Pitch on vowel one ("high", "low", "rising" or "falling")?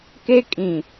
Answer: high